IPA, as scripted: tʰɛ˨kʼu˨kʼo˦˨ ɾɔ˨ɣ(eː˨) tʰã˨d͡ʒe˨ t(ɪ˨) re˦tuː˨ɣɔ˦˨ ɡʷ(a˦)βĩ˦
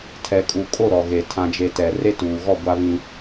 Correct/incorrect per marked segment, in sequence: incorrect: e˨, incorrect: ɛ˨, correct

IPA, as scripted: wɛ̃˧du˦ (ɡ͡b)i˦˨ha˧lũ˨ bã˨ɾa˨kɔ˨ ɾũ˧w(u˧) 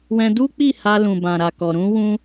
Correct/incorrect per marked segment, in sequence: incorrect: k͡p, incorrect: ũ˧

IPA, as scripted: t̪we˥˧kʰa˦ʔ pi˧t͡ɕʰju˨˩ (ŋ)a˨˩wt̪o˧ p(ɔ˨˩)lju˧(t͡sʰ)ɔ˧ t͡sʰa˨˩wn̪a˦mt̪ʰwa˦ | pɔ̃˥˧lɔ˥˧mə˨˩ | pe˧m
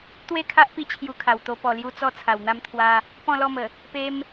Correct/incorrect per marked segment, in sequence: incorrect: kʰ, correct, incorrect: t͡s

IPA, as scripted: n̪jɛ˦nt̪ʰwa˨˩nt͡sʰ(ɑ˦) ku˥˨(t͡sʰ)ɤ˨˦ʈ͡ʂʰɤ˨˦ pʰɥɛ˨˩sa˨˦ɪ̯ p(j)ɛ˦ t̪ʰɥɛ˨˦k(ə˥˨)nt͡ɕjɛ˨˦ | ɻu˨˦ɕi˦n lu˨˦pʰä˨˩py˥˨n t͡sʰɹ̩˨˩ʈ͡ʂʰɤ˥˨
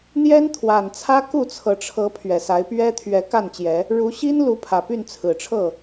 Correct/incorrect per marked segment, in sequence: incorrect: ä˦, correct, incorrect: ɥ, incorrect: a˥˨

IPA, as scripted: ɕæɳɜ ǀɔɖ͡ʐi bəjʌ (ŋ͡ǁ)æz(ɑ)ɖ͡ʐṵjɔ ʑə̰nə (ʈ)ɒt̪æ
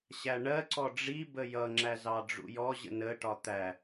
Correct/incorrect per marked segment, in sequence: correct, correct, correct

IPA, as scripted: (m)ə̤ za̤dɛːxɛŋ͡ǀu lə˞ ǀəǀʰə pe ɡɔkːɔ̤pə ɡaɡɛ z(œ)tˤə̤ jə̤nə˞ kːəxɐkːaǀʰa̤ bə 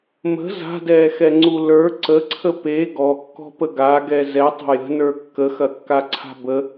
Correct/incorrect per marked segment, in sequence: correct, incorrect: ɛ

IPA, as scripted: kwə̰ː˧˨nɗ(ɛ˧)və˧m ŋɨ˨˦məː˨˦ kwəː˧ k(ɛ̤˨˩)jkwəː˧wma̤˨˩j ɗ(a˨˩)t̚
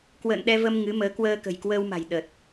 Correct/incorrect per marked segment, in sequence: correct, incorrect: ə̤˨˩, incorrect: ə˨˩

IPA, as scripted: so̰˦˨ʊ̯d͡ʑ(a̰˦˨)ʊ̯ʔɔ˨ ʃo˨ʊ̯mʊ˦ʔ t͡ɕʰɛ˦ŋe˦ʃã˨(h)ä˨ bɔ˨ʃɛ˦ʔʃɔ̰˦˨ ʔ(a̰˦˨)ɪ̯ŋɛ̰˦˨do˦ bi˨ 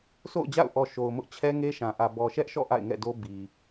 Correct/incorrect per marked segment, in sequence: correct, incorrect: ʔ, correct

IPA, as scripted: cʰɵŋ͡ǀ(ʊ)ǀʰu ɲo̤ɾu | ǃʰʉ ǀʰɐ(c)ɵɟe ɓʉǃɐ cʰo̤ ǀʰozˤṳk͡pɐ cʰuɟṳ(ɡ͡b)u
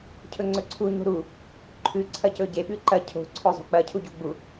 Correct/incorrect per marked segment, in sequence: incorrect: ɵ, correct, correct

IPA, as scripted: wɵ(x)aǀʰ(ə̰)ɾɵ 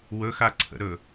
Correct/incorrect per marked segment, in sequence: correct, correct

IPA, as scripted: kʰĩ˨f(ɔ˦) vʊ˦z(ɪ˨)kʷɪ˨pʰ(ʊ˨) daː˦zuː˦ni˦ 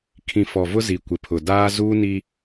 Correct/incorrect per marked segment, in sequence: incorrect: ɔ˨, incorrect: i˨, correct

